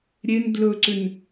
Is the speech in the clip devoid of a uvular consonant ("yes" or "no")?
yes